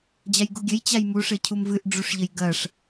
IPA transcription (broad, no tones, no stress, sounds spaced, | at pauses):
d͡ʑ a j ɡ u ɡʲ ɘ j t͡ɕ a j m u ʂ ɘ cʰ u m v ɨ ʔ ɖ͡ʐ u ʂ ʎ ɘ j ɡ ɐ ʂ